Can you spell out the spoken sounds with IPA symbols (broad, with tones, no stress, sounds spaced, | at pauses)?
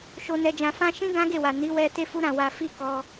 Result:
ʃ o˧ n ɛ˧ d͡ʒ ã˧ f ã˦ ʃ ĩ˦ ɡ ã˦ ɡ e˦˨ w a˨ n i˨˦ w ɛ˧ t e˦ f u˦ ɾ ã˦˨ w a˧ f i˦ k ɔ˧